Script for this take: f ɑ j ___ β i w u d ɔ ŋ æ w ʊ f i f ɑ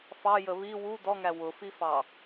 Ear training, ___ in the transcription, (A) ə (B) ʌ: A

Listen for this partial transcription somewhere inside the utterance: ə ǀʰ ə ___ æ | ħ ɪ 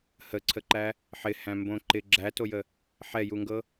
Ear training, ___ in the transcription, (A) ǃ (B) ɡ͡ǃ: A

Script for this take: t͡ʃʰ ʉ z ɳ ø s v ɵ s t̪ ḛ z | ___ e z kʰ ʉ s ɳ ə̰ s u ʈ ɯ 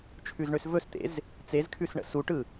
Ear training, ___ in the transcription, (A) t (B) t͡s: B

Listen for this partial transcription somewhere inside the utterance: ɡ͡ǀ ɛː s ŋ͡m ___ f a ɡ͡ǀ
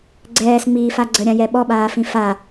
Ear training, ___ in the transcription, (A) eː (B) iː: B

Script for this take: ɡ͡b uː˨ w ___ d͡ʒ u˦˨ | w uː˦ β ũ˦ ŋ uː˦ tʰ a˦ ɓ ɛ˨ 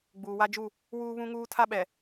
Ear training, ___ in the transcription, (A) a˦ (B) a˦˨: A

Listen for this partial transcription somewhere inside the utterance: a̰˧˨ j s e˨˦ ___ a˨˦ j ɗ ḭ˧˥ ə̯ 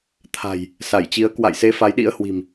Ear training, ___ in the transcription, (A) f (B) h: A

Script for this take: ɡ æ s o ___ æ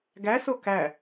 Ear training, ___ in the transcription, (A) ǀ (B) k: B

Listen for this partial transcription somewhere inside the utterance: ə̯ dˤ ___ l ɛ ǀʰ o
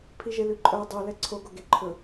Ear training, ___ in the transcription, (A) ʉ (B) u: B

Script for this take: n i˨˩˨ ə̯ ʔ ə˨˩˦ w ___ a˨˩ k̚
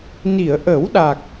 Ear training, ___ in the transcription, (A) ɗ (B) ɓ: A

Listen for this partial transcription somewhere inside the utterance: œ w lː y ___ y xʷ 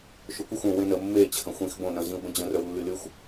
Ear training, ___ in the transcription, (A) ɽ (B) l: B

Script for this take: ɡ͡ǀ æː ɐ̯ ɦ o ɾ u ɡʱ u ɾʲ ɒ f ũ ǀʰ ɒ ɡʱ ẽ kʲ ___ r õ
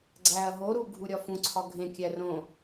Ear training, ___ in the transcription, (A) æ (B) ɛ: A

